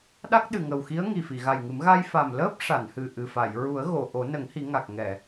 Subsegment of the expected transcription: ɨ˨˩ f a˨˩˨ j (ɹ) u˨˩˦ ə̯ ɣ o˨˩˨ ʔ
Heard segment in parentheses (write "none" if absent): ɹ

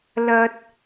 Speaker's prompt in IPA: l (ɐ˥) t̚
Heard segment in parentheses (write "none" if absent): ɐ˧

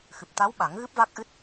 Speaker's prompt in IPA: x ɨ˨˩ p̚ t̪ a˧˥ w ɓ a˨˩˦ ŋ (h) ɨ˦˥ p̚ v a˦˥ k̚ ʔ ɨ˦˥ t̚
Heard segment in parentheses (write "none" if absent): ɣ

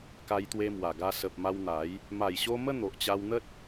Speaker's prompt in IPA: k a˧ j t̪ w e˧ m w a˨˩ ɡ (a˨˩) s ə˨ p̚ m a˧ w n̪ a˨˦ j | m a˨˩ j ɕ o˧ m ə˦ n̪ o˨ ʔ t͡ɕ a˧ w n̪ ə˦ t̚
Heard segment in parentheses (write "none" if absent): a˧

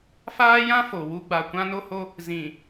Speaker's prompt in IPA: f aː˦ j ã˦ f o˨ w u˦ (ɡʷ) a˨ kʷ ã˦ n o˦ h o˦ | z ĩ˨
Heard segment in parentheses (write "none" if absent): ɡ͡b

